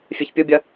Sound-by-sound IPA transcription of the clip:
fʲ e ç pʲ u bʲ ɐ

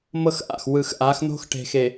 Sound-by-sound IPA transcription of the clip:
m ɤ˦ x ʔ a̰˨ x w ɯ˨ x ʔ a˨˦ x n̪ o̤˦ x ʈ e̤˨ x e˨

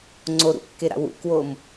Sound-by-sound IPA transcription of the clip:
ŋ͡ǀ o ɾ ṵ kː e ɾ a̰ w ṵ k w o m

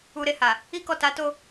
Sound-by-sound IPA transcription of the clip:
u˧ ɾ e˧ h a˨ | i˧ k ɔ˨ t a˨˦ t o˧

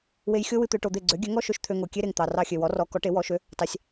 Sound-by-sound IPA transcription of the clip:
w e˧ j xʲ o˥ w ɨ˧ t̪ ø˧ ʈ o˧ d̪ e˥˩ ɡ͡ǀ ø˩˥ ɡʲ ø˩˥ ŋ ɔ˥ ʃ ø˧ ʃ t̪ʰ ø˧ ŋ o˩ kʲ e˥ ɾ e˩ ŋ t̪ ɑ˩ r ɑ˧ xʲ ø˩ w ɔ˩˥ r ɔ˩˥ k ɔ˩˥ ʈ e˩˥ w ɔ˩˥ ʃ ø˩˥ | t ɑ˩ sʲ

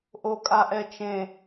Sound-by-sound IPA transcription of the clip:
ʔ o kʼ a ʔ ɛ t͡ʃ ẽ

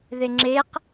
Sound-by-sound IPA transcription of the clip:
ð e ŋ͡ǁ e q

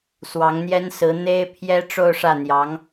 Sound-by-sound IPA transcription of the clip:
s w ɑ˧˥ ŋ n̪ j ɛ˥ n s ɹ̩˧˥ n̪ e˥ ɪ̯ pʰ j ɛ˥ ʈ͡ʂ o˥˧ ʊ̯ ʂ ä˥˩ n̪ j ɑ˧˥ ŋ

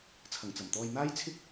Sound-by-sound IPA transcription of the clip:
t͡sʰ ɐ˨˩ ŋ t͡s ɐ˨˩ m t̪ ɔː˧ j n̪ aː˥ j t͡sʰ ɪ˥ k̚

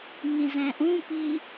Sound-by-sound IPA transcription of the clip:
ŋ ĩ z ɛ̃ ʔ ũ p i

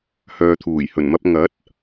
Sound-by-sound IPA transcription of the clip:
h œː˨ t̪ʰ uː˨˩ j h ɵ˨˩ n m ɐ˧ p̚ ŋ ɐ˨˥ t̚

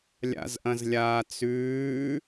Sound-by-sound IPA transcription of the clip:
lʲ a̰ z ʔ ɐ̃ z lʲ aː t͡s ʉː

